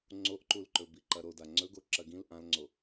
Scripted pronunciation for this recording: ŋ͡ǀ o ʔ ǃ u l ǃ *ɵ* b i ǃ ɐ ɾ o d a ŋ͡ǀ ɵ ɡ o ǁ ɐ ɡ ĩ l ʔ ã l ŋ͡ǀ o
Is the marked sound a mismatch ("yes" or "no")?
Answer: no